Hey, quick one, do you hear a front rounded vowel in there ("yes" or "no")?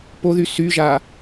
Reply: yes